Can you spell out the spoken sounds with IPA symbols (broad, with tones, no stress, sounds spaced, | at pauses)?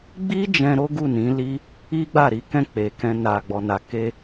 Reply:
ɡ͡b i˦ d͡ʒ ɛ̃˧ ɾ o˦ ɡ u˦˨ n ĩ˨˦ l i˦ | i˦ ɡ͡b a˦˨ ɾ i˨˦ k ɛ̃˦˨ k͡p e˨ k ɛ̃˧ n a˨ ɡ͡b ɔ˨ n a˨ k e˧